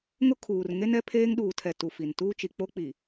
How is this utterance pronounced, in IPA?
ŋ ʊ˦ kʰ uː˨ r ŋ e˦ n ɛ˦ pʰ eː˦ ŋ ɗ uː˨ tʰ ɛ˨ t u˨ f i˨ n t uː˦ t͡ʃ i˨ k͡p o˦ k͡p i˨

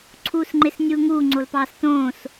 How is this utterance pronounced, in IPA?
ǀʰ uː s ŋ͡ǃ e s nʲ uː ŋ uː ŋ͡ǀ o l p ɑː s t õː s

